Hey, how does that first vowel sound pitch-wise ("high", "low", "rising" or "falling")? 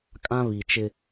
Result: high